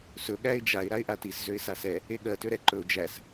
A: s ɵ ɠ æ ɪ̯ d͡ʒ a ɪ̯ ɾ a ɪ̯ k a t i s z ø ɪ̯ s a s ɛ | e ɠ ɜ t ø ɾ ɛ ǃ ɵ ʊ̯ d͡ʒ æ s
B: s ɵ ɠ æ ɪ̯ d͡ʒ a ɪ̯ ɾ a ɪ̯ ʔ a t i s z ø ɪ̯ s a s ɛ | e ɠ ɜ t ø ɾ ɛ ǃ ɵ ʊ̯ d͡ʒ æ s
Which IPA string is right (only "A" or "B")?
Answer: B